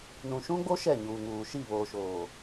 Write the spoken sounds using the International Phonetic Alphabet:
n ũ˨ ʃ ũ˦ ɡ͡b o˦ ʃ ɛ˦˨ ɲ uː˨ ŋ uː˨ ʃ i˦˨ β oː˨ ʃ oː˨

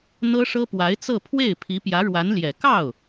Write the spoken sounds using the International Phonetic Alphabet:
n̪ ɤ˥ ʂ ɤ˥ p w a˧˥ ɪ̯ t͡s ɤ˥˧ pʰ w e˥˩ ɪ̯ pʰ i˧˥ p j ä˧˥ ɻ w a˧˥ n l j ɛ˨˩ k ɑ˥˩ ʊ̯

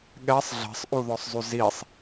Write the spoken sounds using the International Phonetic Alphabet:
ɠ ɛ sˤ ɮ ɛ̤ sˤ ʔ u ð ɔ sˤ zˤ y z i sˤ

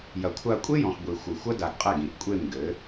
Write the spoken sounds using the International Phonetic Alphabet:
j ɐ˨ kʷʰ a˧ kʷʼ e˦ j ɔ̃˨ x ɡʷ i˨ xʷ ɘ˨ xʷ ɐ˦ d a˧ ɡ qʼ ɛ˦˨ ɡ ĩ˨ ʔ kʷʼ e˦˨ m ɡ ɘ˨˦

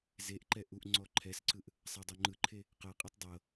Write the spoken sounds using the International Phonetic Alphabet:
z e ʔ ǃ ɛ ʔ u ʔ ŋ͡ǀ ɔ ǃʰ ɛ s ǀ ɯ ʔ | sˤ a dˤ o ŋ͡ǃ ɯ ǃʰ e | q ɤ qʼ e tˤ dˤ ɤ

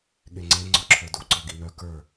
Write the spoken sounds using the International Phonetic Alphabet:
ɠ e ŋ͡ǀ e ŋ͡ǀ ɔ ǁʰ ə˞ d u ǀ ɔ ɡ i n̪ œ k ə˞

